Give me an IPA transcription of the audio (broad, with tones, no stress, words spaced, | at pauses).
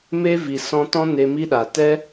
me˦vi˨ sɔ̃˧tɔ̃˦ ne˧mi˦ɗa˨ tɛ˦